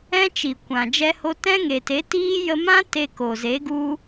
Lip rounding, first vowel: unrounded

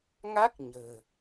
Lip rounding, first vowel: unrounded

